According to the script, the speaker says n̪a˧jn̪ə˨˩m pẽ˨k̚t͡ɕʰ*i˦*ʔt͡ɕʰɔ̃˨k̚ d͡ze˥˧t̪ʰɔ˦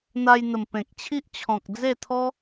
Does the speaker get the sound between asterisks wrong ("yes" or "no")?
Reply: no